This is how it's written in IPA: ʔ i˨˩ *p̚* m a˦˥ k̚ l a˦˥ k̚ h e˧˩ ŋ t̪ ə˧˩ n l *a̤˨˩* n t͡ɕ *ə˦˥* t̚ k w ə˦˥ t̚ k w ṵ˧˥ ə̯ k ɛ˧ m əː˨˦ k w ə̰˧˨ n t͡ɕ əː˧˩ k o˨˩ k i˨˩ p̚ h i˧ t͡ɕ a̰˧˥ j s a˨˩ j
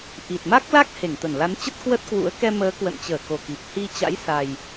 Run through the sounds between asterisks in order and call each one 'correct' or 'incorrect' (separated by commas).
incorrect, incorrect, correct